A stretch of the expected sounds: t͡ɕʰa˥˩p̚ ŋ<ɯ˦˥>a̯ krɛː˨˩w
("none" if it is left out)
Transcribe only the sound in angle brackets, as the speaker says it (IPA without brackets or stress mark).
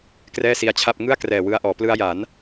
ɯ˥˩